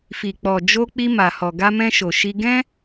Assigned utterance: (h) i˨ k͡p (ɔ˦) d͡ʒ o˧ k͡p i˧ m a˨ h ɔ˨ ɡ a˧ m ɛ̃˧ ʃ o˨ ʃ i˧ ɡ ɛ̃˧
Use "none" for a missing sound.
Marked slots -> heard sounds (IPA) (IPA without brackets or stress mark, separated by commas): f, ɔ˨